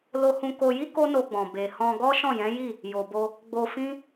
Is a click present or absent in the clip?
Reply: absent